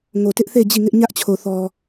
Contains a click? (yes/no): no